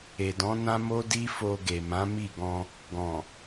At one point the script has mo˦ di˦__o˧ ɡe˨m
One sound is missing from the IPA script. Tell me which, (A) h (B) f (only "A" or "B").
B